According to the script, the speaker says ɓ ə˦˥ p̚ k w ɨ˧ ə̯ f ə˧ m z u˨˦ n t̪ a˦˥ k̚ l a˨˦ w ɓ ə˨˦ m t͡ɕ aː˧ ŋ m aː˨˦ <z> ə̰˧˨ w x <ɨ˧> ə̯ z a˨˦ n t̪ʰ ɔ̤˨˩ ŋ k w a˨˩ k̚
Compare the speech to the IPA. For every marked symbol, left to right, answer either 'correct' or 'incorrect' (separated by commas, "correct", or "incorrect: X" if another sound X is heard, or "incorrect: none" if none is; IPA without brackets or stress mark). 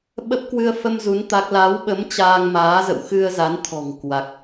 correct, correct